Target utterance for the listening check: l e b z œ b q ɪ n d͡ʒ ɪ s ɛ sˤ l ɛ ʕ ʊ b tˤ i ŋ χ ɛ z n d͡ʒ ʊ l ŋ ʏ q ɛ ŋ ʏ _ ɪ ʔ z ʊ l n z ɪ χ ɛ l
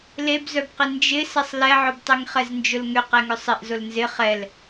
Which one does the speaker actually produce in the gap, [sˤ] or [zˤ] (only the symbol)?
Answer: sˤ